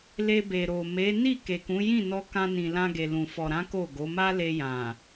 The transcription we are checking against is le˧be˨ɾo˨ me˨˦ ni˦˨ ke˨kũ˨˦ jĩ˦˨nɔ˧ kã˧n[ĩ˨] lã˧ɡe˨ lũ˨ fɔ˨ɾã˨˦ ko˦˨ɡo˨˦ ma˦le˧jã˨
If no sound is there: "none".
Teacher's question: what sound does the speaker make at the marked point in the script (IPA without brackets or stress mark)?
ĩ˨